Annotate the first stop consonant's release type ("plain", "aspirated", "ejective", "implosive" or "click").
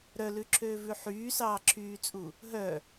click